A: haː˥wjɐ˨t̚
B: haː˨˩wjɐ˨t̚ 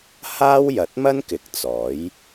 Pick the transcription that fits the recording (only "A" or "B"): A